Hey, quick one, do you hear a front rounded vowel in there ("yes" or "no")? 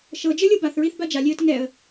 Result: no